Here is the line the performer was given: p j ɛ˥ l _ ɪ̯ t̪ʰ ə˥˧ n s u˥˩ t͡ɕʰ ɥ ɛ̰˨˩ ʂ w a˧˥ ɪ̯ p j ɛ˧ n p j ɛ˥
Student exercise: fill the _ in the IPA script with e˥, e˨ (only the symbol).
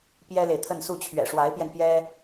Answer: e˨